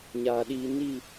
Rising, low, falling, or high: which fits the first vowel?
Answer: low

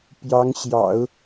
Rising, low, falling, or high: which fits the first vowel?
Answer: rising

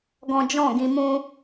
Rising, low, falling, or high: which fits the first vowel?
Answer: high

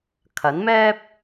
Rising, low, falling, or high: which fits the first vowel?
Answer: rising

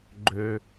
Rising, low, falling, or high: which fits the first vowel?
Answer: low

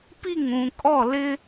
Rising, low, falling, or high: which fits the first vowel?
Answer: falling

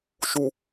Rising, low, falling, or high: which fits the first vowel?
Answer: low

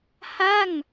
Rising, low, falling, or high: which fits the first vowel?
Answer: falling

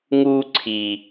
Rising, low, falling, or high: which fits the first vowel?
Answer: high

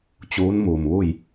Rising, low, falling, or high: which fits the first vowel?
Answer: rising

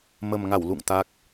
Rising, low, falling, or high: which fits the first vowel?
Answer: low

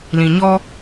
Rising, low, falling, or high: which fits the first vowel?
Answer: low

